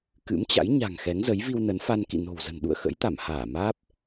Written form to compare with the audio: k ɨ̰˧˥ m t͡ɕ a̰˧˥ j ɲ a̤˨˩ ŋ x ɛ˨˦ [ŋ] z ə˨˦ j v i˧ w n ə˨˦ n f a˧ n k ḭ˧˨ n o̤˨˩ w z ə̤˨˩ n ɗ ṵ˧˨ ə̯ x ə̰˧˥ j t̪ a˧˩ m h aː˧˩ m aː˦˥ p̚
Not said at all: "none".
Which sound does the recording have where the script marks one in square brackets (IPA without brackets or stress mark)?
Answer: ŋ